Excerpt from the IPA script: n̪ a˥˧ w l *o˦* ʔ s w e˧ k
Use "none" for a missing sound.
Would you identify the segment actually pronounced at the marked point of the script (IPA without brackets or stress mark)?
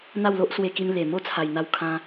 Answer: o˦